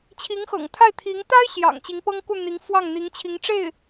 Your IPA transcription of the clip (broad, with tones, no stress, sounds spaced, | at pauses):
t͡ɕʰ i˧˥ ŋ x ɤ̰˨˩ ŋ t̪ʰ a˥˩ ɪ̯ t̪ʰ i˧˥ ŋ t̪ a˥ ɪ̯ ɕ j ɑ̰˨˩ ŋ t͡ɕ i˧˥ ŋ p ɤ˥ ŋ k u˥˩ n̪ i˧˥ ŋ f w ɑ˥˩ ŋ n̪ i˧˥ ŋ t͡ɕʰ i˧˥ ŋ ʈ͡ʂ e˥˩ ɪ̯